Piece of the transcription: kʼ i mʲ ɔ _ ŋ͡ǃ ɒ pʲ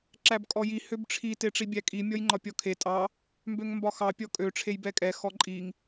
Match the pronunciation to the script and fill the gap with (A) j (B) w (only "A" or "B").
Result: A